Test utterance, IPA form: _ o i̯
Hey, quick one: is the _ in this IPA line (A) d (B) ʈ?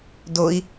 A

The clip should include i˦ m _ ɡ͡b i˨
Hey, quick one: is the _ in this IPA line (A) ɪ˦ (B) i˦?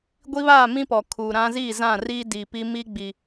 B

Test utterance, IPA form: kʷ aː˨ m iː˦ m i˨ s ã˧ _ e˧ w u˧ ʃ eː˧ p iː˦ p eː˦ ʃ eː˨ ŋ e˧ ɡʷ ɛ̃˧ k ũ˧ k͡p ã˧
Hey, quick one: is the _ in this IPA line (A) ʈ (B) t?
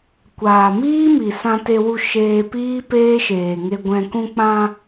B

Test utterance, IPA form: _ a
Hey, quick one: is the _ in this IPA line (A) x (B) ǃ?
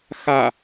A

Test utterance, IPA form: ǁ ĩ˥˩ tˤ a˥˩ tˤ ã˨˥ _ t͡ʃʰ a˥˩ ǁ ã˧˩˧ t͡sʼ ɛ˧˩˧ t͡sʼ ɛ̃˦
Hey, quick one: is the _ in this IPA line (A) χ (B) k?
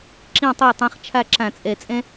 A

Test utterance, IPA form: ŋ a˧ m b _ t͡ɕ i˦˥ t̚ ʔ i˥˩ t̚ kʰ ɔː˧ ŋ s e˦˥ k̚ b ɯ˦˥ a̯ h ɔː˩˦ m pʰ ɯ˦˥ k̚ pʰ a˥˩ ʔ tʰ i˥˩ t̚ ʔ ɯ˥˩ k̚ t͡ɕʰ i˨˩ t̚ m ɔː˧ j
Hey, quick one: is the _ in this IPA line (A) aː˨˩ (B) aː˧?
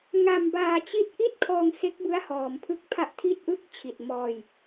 B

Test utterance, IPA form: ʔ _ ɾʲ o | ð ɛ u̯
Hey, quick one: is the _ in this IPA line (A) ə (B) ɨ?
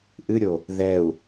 B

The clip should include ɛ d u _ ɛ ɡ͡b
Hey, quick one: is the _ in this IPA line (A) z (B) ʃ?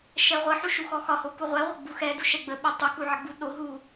B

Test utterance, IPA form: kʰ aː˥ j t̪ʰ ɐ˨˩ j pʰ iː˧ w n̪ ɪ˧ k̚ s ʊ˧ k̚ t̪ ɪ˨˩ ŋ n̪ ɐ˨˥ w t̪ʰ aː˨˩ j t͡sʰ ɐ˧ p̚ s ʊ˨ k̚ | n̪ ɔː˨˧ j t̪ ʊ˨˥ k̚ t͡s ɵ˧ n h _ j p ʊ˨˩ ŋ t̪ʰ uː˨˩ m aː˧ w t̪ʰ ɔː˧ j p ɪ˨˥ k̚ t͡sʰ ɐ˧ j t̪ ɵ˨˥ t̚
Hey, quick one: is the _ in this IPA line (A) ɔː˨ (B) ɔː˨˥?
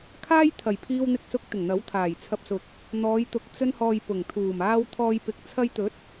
A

